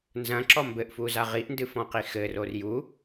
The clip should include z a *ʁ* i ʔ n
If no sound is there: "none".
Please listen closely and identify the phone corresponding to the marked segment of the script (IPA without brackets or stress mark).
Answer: ʁ